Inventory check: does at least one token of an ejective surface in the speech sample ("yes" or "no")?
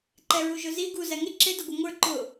no